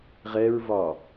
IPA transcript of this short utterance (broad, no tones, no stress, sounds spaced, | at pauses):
ʁ ɛ ɹ v ɒ